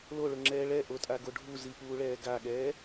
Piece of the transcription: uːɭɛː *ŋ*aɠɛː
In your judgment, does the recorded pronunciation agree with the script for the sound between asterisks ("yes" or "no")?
no